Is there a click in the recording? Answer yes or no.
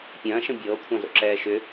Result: yes